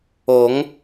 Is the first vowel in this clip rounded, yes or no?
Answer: yes